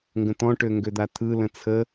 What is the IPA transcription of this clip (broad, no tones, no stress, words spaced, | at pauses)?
ŋɡə̃t̪ɔ̃ʈø ŋɡød̪at̪ʰɯlə̃ t͡sʰə